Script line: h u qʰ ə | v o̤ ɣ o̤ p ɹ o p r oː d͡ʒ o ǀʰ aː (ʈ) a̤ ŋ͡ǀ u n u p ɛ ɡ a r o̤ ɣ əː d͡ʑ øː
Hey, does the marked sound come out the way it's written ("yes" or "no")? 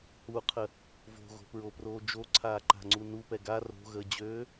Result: no